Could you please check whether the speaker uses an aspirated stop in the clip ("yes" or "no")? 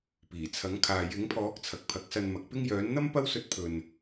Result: yes